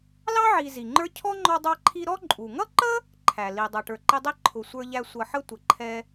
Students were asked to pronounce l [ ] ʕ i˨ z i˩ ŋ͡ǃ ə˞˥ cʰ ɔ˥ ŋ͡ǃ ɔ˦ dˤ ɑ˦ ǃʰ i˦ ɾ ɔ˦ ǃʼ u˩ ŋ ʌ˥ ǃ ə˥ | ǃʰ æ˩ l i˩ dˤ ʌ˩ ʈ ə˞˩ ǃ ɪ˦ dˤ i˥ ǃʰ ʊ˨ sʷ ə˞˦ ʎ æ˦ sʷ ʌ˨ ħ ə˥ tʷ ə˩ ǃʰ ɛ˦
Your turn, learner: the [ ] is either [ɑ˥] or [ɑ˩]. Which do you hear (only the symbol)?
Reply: ɑ˥